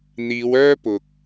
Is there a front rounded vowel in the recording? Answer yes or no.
yes